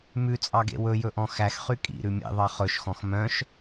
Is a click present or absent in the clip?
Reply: absent